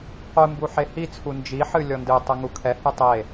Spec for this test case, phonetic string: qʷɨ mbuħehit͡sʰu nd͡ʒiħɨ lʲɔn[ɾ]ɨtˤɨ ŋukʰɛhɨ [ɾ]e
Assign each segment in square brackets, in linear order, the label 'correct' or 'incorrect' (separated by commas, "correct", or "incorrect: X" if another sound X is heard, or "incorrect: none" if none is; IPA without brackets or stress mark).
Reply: incorrect: d, incorrect: tˤ